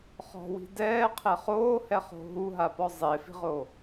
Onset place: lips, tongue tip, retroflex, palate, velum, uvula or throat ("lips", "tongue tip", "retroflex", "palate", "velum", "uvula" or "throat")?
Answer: uvula